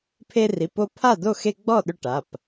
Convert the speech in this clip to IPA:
pʰ e˦ r i˩˧˩ p o˦ pʰ a˥˨ d o˥˨ x e˦ ɡ͡b ɔ˥˨ ɗ ʏ˦ ʈ a˩˧˩ p

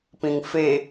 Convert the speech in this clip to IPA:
p ĩ ŋ f e

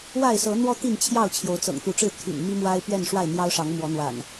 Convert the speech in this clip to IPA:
w a˥˨ ɪ̯ s ɤ˨˦ n̪ w ɔ˦ t̪ i˥˨ n t͡ɕʰ j ɑ˥˨ ʊ̯ t͡ɕʰ j o˨˦ ʊ̯ t͡s ɤ̰˨˩ ŋ t̪ u˨˦ ʈ͡ʂ ɻ̩˥˨ t̪ʰ y̰˨˩ n m i˦ m w a˦ ɪ̯ p ɥ ɛ˥˨ n ʂ w a˥˨ ɪ̯ n̪ j ɑ˦ ʊ̯ ʂ ɑ˨˦ ŋ m w ɔ˨˦ n̪ w a̰˨˩ n

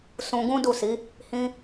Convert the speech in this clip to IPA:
s ũ˧ ɡ ũ˦ d u˦˨ s i˨˦ | h ĩ˧

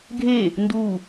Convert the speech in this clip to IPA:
ɡʱ e | n d u

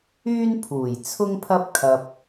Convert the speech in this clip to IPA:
yː˥ n pʰ uː˨˩ j t͡sʰ ʊ˥ ŋ pʰ ɐ˥ p̚ kʰ ɐ˧ p̚

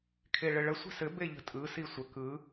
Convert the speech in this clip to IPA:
kʰ e ɭ ɘ ɭ ə sʷ i̤ s ɘ b e ʎ ə̤ tʼ ɯ s i sʷ ə k ɯ

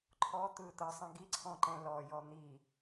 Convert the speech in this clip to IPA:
ǃʰ ɔ t̪ ɯ t̪ ɤ sˤ ĩ ɡ i ǀʰ ɔ̃ ǃ ɛ̃ l ɔ j ɔ n̪ i

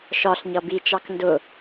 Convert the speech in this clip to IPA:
ʃ ɒ ɬ ɲ ʌ b i t͡ʃ ɑ k n d ʊ

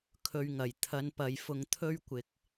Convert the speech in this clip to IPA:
kʰ ɵ˧ ɥ ŋ ɐ˨˩ j t̪ʰ ɐ˨˧ n p ɐ˨ j f ʊ˧ ŋ t̪ʰ ɵ˥ ɥ kʷ ɪ˨ k̚

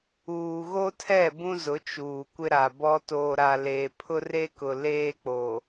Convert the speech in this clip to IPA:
uː˨ ɣ o˦ tʰ ɛ˦˨ b ũ˦ z ʊ˨˦ t͡ʃ uː˨ kʷ ɪ˦ ɾ a˨ b ɔ˦ t oː˨ ɾ a˨ l eː˨ pʰ ʊ˦ r e˦ k ʊ˨ l eː˦ k͡p o˨

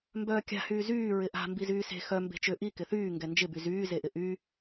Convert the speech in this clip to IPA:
m b œː kʲ a̤ h yː z yː ɹ ɪ ʔ a̤ m b i z yː s e̤ x œ m b e̤ t͡ʃ ʏ ʔ i k ɪ θ yː ŋ ɡ ɛ n d͡ʒ ɪ b y z yː z e ʔ ɪ ʔ y

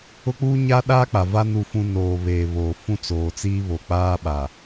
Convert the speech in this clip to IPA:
ʊ˦ k͡p uː˦ ɲ a˦ ɗ aː˦ k͡p a˨ v a˦ n u˦ f ũ˦ n oː˨ β e˨ β oː˨ f ũ˦ t͡s oː˨ t͡s iː˦ β o˨ k͡p aː˦ ɓ a˨

